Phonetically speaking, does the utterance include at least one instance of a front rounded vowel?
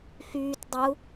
yes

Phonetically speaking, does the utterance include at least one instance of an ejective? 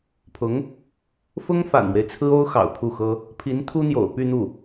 no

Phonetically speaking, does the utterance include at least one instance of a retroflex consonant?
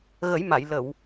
no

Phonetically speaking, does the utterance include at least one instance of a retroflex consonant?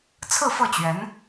no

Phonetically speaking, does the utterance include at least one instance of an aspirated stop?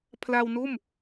yes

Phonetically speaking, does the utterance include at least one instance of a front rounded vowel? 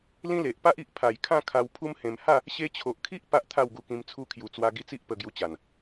no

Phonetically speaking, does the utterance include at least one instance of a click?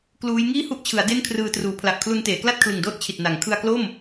no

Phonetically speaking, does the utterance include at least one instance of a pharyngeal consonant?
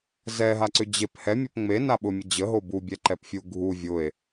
no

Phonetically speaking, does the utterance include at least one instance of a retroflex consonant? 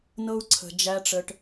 yes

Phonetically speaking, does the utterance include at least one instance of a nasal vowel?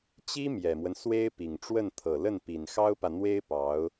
no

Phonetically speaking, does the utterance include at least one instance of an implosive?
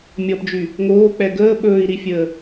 yes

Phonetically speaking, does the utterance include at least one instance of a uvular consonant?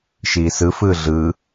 no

